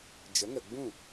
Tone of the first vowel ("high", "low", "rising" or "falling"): rising